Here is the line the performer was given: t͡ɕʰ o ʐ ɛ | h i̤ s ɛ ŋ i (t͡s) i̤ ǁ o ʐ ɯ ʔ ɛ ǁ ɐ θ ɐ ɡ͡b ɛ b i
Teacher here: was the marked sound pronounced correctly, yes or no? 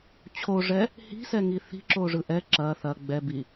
no